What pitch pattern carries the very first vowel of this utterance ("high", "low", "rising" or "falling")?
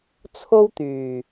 high